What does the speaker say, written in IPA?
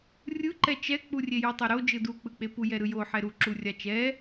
rʲ ɯ ǃ ɛ t͡ʃ ɛ k͡p u rʲ e j u tˤ ɛ ɾ o d͡ʒ ɯ d u k͡p ɯ k͡p e p u j ɛ ɾ ɯ j o ħ ɛ ɾ u ǁ u rʲ a t͡ʃ ɛ

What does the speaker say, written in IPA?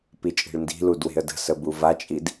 p i t͡ʃʼ i̤ ɭ n d i̤ l u d w e̤ ə̯ d ə̤ s ə b u v a t͡ʃʼ i d

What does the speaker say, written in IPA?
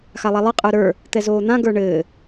x a lˠ a lˠ ɯ qʼ ə˞ ɾ ə˞ | t̪ ɛ z oː n̪ ã ɡ ə˞ ɳ ɘː

